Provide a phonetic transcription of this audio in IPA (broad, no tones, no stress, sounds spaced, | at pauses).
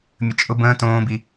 mʲ ə t͡ʃʼ ʊ b ə̃ː t õː b i